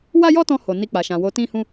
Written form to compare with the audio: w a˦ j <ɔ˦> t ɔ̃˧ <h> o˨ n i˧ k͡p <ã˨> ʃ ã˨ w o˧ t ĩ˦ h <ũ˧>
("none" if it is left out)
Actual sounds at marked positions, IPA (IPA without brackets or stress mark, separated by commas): ɔ˦, h, a˨, ũ˦